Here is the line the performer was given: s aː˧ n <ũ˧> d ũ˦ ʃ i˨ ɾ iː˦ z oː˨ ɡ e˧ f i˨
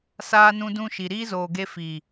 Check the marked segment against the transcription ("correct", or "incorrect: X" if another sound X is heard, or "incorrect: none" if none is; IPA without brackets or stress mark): correct